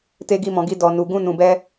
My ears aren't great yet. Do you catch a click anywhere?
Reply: no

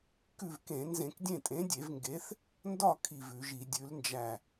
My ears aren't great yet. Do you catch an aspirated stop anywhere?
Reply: yes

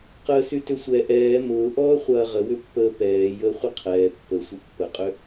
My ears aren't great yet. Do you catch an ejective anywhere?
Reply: yes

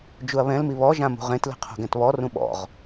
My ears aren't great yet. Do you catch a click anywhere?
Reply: no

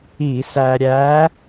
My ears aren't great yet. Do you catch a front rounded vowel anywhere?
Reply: no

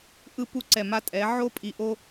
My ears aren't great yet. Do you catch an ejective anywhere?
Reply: yes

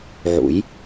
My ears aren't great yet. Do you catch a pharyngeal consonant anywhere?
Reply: yes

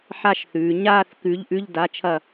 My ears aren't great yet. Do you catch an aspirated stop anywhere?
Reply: yes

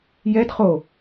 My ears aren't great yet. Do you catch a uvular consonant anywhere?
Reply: yes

